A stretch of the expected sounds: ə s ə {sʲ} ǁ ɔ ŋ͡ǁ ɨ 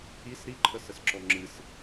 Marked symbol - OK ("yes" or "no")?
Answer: no